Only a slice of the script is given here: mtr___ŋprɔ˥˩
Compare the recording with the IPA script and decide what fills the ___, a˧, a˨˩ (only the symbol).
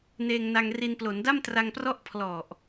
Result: a˧